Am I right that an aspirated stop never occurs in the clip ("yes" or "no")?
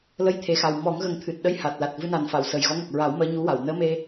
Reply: no